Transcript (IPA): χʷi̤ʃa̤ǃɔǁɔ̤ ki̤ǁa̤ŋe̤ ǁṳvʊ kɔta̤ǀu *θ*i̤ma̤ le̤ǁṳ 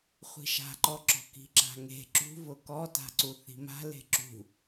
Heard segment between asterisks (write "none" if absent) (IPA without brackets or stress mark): θ